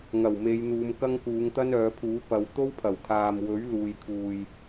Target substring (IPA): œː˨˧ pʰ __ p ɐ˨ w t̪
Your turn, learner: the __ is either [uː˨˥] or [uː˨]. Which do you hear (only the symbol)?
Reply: uː˨˥